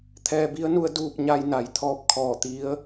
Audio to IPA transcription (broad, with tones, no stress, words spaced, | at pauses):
t̪ʰɛː˧ bi˧˥ə̯nu˧ə̯ duː˥˨p̚ɲa˧j na˩˧jt̪ʰɔː˧p̚ kʰɔː˧˩t̪i˧˥ə̯